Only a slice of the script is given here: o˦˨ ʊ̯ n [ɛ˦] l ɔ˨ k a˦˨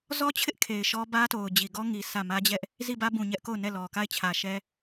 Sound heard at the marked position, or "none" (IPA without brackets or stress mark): ɛ˦˨